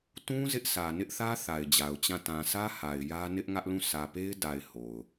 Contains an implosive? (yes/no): no